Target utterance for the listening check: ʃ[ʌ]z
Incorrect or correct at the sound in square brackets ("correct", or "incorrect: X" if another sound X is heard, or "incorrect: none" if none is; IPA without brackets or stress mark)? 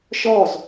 incorrect: ɔ